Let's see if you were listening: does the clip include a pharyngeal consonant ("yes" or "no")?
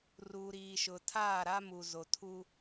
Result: no